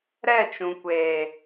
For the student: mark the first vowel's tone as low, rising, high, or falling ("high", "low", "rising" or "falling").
falling